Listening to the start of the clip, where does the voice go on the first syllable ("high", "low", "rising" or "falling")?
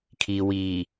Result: low